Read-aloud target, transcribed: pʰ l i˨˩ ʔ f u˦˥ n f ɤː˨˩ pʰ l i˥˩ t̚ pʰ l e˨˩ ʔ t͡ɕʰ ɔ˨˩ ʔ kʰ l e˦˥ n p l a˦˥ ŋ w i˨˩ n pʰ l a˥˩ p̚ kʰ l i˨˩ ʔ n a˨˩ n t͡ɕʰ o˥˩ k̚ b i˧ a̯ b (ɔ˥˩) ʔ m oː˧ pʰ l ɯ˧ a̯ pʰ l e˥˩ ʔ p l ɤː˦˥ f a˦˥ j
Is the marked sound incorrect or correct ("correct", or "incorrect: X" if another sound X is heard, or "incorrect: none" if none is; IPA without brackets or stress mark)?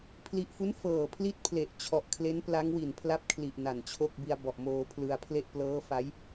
incorrect: ɔ˨˩